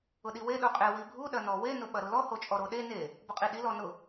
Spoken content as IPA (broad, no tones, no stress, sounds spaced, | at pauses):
ʊ ɗ i w e ɗ u qʼ e w i bʱ u ɗ ɐ n ɔ w e n ʊ ɓ ɐ ɾ ʊ l ɔ h o t͡ʃʼ ɔ ɾ o ɗ e n e | b ʊ qʼ i ɗ i l ɔ n ʊ